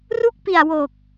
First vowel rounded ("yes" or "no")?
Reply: yes